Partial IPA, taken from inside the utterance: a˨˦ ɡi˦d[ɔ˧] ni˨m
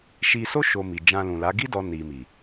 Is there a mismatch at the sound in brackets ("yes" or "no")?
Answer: no